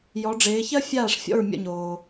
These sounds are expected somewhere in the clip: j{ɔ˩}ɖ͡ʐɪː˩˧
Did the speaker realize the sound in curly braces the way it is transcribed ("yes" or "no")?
no